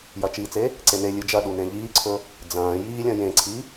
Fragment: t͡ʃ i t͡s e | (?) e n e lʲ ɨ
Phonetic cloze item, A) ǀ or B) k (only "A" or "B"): A